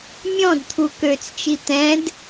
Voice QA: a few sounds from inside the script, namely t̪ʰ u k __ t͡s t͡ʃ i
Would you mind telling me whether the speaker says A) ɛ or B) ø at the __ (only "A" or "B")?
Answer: B